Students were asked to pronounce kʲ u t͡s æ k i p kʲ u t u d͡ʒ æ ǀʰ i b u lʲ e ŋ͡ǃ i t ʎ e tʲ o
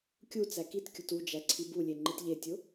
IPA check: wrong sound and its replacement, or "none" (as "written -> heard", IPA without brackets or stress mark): p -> t